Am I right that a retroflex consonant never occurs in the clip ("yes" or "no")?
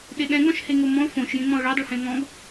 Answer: no